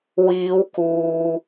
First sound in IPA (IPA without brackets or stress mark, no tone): w